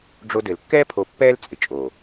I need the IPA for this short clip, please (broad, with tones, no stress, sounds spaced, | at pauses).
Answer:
ɖ͡ʐ o˦ d ɘ˨ l kː ɛː˦ pʰ o˨ pː ɛː˦ l t͡sʼ ɪ˨ t͡ʃʼ o˨